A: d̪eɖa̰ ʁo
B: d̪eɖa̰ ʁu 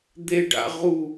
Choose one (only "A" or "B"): B